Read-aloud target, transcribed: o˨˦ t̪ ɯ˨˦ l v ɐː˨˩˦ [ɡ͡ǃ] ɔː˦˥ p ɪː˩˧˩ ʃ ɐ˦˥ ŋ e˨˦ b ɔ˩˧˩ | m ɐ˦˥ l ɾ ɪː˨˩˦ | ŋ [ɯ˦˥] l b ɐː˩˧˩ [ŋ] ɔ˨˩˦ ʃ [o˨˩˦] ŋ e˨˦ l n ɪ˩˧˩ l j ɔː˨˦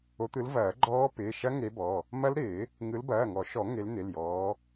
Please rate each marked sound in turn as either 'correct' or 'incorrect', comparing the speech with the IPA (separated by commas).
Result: correct, incorrect, correct, incorrect